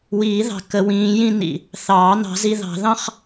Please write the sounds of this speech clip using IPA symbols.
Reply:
w iː˨˩˦ ð ɑ̤˨˩ k ə˨˩˦ w ĩː˨˦ j ĩ˥˧ n ḭ˨˩ | θ ɑː˨˩˦ n ɑ̤˨˩˦ z i˨˦ ð ɑ̤˨˩˦ ð ɑ̃˥˧ χ

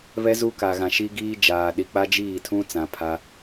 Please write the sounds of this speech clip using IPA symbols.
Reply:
β ɛ˦ z u˦ k a˨ ɣ ã˨ ʃ i˦ ɡ iː˦ d͡ʒ aː˨ ɗ i˨ k͡p a˦ d͡ʒ iː˦˨ tʰ ũ˦ t͡s ã˨ pʰ a˦

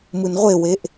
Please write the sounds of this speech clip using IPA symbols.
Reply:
m ɯ n ʁʷ e w e ʔ

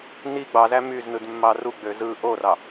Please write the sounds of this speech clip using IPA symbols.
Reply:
n i ɡ͡b ɑ z æ m y z n ɯ d mː ɑ r u ɡ͡b ø z ɯ ʔ o r ɑ

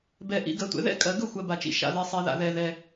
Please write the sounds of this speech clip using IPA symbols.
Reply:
b ɛ˨ ʔ ḭ˨ ɡ ɜ˨ tʷ ɛ̰˨ ð ɛ̰˥˧ kʼ ɜ˨ ɡ ɵ˥˧ xʷ ɜ˨ b a˨ t͡ʃ ḭ˨ ʃ a̰˨ ð ɛ˨ sˤ ɛ˨ ð a̰˨ ð ɛ˨ ð ɛ˨

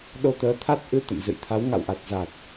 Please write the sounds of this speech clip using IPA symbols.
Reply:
ɗ o˧ t̪ əː˨˦ t̪ʰ a˦˥ t̚ ʔ ɨ˧ t̪ ə̰˧˨ m z ɨ̰˧˨ j t̪ʰ a˨˦ w ŋ a̰˧˨ w ʔ a˨˩ t̚ z a˨˩ t̚

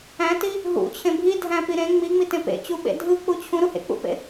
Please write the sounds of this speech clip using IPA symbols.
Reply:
æ̃ t i | ɦ ṵ t͡ɕʰ ẽ bʱ i dʱ æ̃ p i ɾ ẽ ŋ͡m i ŋ͡m i t ẽ p ḛ t͡ɕ u ɓ ḛ dʱ ɯ k͡p u t͡ɕʰ ũ ɾ u h ḛ k͡p ṵ p ḛ

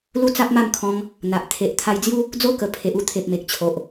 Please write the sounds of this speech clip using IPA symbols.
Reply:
l u˦ t͡s a˦ p̚ m a˥˧ m kʰ ɔ̃˧ ŋ | n̪ a˨ ʔ t̪ʰ e˨ ʔ t̪ʰ a˧ j d͡z j u˦ | d͡z o˦ k ə˨˩ pʰ e˨ ʔ u˦ t̪ʰ e˨ p̚ m e˨ k̚ t͡ɕʰ o˨ ʔ

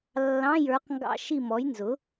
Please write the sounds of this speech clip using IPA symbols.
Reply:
lː ɑ̃˧˥˧ j ə˞˨˥ q ŋ ɡ ɑ̰˦˨ ʃ i˦˨ m ɔ˨˥ j n z ʊ˨˥

